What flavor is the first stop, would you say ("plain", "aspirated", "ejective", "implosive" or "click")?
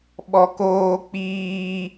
implosive